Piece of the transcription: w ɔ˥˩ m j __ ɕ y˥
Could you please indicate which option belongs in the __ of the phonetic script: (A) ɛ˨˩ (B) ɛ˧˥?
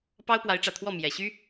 A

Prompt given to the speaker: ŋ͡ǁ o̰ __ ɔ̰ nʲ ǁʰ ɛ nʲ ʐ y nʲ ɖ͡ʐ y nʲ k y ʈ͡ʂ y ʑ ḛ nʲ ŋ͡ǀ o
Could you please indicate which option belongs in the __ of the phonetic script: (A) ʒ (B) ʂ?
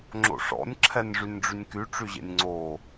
B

